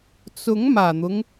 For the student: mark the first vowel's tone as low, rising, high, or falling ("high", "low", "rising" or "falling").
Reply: rising